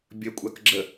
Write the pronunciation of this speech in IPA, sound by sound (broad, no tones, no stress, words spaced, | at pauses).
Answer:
bʲəkʷʼak ɡ͡ǁə